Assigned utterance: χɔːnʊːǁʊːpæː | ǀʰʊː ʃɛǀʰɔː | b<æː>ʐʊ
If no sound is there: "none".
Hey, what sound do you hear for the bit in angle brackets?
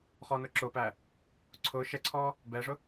ɛː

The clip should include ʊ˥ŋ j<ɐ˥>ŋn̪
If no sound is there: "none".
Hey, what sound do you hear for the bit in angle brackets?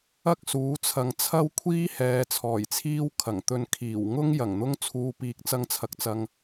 ɐ˨˩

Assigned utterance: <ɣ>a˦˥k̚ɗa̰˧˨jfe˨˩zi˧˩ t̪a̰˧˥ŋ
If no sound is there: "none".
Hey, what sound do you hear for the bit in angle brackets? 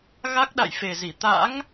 ɣ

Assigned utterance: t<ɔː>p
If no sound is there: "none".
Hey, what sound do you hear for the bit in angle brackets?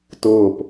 ʊː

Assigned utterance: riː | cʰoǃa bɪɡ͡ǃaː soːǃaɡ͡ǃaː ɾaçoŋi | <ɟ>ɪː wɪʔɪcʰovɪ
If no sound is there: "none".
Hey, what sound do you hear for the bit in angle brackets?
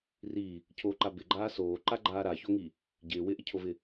ɟ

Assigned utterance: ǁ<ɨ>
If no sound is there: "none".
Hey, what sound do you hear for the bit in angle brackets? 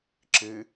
ɨ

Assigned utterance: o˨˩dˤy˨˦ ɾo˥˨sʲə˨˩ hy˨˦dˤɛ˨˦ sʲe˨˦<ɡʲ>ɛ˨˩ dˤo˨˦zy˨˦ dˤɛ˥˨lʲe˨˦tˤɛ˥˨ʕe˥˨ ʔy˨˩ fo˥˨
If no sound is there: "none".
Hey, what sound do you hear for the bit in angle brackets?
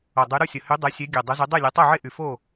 ɡʲ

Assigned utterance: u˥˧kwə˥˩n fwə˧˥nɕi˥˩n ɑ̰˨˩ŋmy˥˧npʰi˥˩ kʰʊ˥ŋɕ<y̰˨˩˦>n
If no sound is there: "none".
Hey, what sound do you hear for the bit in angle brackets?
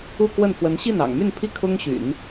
y̰˨˩˦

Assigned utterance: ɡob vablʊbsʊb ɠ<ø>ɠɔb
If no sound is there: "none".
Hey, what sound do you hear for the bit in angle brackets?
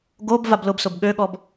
ø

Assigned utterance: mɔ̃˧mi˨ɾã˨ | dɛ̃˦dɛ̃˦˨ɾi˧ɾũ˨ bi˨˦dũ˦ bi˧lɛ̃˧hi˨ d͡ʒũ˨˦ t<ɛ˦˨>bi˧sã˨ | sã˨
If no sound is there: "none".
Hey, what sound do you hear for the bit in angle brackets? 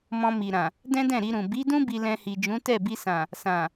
ɛ˦˨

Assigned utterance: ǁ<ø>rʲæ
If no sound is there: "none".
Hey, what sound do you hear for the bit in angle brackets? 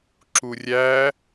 u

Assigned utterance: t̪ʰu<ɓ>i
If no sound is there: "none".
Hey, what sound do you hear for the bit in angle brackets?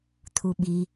ɓ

